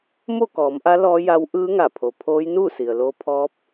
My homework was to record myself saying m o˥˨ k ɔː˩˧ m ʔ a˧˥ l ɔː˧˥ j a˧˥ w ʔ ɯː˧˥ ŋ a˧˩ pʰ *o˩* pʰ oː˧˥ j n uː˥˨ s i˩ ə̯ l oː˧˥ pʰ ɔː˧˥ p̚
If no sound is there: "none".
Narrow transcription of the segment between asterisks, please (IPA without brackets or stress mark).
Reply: o˩